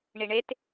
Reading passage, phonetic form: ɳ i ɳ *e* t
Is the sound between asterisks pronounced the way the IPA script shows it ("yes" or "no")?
yes